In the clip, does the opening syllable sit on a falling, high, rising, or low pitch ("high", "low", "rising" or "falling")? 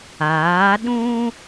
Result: rising